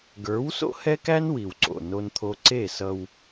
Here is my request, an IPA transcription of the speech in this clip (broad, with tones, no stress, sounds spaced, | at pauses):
ɡ ə˞˨˦ w s o̰˦ h ɛ˦ k æ˦ n w i˨ w ǀ o̰˨ n o˦ n t̪ʰ o˦ ǀ e˦˨ s ʌ˦ w